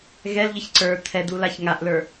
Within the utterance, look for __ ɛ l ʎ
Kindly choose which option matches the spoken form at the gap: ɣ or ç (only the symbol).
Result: ɣ